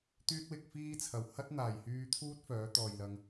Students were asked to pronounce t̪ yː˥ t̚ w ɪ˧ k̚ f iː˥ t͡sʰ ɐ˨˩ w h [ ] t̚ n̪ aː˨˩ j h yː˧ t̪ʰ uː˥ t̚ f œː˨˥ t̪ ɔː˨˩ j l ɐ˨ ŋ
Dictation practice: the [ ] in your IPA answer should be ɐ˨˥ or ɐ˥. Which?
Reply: ɐ˥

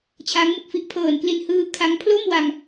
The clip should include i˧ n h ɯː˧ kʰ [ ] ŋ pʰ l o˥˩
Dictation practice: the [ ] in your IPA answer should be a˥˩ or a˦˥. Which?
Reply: a˦˥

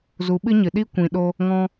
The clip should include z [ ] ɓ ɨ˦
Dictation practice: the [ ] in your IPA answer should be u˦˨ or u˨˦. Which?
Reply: u˨˦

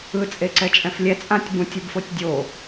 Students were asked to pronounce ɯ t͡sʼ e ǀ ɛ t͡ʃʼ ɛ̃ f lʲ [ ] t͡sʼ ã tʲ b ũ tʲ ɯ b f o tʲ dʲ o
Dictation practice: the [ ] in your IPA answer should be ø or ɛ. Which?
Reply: ɛ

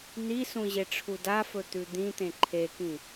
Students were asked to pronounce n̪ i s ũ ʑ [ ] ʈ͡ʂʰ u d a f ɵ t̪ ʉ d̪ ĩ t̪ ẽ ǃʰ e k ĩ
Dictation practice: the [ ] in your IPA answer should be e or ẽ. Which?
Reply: e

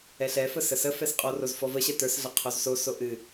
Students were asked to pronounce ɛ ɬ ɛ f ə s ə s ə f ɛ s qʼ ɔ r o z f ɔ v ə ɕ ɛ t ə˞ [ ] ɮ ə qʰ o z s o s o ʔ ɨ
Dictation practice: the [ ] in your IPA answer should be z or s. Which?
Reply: s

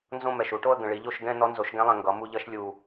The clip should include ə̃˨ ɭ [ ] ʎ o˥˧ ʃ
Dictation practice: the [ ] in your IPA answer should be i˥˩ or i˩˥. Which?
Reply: i˩˥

